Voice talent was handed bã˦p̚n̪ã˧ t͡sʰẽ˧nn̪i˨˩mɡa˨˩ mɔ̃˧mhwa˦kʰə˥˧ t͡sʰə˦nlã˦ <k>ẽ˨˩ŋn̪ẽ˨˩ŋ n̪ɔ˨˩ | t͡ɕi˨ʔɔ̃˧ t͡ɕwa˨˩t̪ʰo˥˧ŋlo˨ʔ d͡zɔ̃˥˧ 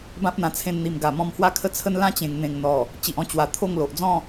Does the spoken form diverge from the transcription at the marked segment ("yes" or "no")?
yes